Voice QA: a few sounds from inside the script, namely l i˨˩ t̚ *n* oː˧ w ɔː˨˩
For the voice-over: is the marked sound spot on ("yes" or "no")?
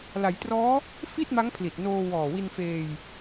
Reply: yes